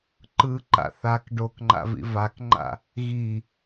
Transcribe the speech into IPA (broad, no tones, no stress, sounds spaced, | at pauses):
ǃ ɯ ǃ a̰ θ a k ɖ o k ŋ͡ǃ a̰ v ḭ v a k ŋ͡ǃ a̰ | ɣ i